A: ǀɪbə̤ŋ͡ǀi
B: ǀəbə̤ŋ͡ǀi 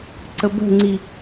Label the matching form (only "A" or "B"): B